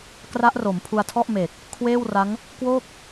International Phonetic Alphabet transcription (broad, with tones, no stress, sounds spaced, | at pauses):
k r a˦˥ ʔ r o˩˦ m pʰ u˧ a̯ tʰ ɔ˥˩ ʔ m e˨˩ k̚ | kʰ w eː˥˩ w r a˦˥ ŋ | k w o˥˩ k̚